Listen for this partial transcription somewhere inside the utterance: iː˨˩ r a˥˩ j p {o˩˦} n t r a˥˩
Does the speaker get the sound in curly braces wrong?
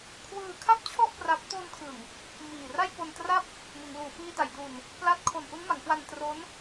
yes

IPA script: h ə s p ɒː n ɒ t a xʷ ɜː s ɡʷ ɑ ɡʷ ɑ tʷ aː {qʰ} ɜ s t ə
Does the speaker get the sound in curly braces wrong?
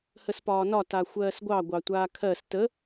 yes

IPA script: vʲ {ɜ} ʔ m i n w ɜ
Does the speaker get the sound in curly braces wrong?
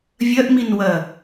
no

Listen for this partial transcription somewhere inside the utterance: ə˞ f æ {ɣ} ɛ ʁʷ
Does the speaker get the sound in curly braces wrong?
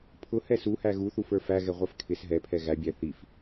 no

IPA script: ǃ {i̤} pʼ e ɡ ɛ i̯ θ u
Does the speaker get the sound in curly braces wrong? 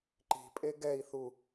no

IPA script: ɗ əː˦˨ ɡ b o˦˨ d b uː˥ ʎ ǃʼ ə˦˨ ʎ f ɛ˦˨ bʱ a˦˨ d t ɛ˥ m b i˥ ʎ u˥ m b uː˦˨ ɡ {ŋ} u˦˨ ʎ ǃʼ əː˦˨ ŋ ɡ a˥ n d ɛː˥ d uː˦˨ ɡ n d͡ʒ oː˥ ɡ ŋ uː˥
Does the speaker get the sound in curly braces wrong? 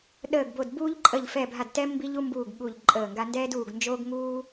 yes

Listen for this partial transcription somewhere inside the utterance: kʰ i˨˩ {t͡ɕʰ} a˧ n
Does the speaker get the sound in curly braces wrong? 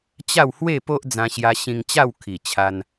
no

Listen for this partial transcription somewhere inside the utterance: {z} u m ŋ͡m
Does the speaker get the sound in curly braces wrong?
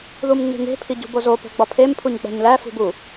yes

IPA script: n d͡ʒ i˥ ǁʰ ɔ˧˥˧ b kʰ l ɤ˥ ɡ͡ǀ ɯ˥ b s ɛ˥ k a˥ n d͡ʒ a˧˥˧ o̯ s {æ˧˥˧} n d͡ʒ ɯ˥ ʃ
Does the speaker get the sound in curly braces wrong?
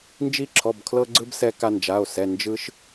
yes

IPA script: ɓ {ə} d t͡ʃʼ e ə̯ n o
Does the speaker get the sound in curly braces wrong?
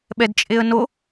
yes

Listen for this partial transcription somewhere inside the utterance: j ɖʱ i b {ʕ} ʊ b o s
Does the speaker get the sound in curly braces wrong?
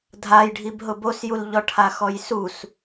yes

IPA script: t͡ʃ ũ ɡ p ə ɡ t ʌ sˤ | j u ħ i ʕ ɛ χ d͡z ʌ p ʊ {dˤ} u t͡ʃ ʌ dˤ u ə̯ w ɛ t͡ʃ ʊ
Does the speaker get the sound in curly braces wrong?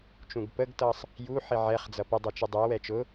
no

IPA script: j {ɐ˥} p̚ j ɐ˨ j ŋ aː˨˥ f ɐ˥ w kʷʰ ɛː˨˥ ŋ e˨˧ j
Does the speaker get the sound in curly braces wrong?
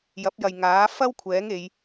yes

